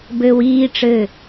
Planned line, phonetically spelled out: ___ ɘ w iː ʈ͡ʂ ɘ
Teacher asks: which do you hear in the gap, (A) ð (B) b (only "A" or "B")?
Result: B